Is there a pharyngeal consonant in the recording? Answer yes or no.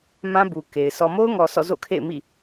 no